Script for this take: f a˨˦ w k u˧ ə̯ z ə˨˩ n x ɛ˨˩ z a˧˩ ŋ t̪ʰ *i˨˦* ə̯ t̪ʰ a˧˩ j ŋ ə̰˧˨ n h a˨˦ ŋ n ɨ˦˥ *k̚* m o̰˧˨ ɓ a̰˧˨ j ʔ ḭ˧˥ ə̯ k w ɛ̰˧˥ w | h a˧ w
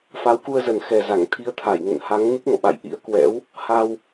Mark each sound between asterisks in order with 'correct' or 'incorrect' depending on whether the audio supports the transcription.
correct, correct

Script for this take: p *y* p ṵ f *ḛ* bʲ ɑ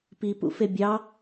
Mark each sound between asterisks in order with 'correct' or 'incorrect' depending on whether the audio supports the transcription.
incorrect: i, incorrect: e

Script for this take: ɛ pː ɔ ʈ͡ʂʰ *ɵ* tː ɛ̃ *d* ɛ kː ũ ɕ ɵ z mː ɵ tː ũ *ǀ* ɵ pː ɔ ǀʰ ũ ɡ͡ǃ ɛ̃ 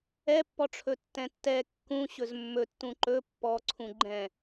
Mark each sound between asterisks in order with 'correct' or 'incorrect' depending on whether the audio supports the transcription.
correct, incorrect: tː, incorrect: ǃ

